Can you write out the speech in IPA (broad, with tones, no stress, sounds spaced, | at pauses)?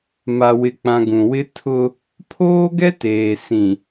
m a˨ w ɪ˨ k͡p ã˨ ɡ ũ˨ w ɪ˦ tʰ ʊ˦ | pʰ oː˦ ɡ ɛ˦ t eː˨ s ĩ˨